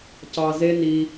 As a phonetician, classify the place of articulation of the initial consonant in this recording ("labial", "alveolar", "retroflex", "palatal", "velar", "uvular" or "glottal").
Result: palatal